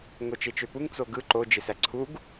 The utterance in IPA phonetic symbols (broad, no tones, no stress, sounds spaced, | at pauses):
ŋ o t͡ʃ e t͡ʃ ø p u ŋ t͡s o ɡ ɯ ǃ o d͡ʒ e s æ ǀʰ u ɡ